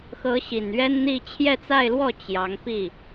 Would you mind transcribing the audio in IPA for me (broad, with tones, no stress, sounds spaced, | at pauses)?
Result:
x ɤ˧˥ ɕ i˨˩ n ɥ ɛ˥ n n̪ i˥˧ t͡ɕʰ j ɛ˥˧ t͡s a˥˧ ɪ̯ l w ɔ˥˩ t͡ɕ j ɑ˧˥ ŋ p i˥˩